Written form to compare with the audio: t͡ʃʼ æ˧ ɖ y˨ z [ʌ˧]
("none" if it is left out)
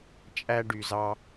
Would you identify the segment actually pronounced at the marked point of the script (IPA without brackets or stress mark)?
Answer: ɑ˧